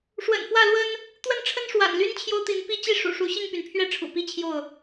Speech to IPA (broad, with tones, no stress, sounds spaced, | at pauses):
ʂ w ə̰˨˩ n f w ä˥˨ l w ə˦ n | t̪ w ə˥˨ n ʈ͡ʂʰ ə˦ n ʂ w a̰˨˩ n l y˦ n t͡ɕʰ j o˦ ʊ̯ t̪ i˨˦ n p i˦ t͡ɕ i˥˨ ʂ ṵ˨˩ ʂ u˨˦ ɕ i˥˨ ŋ p y˩ n pʰ ɥ ɛ˥˨ ʈ͡ʂʰ ṵ˨˩ p i˦ t͡ɕʰ j o˥˨ ʊ̯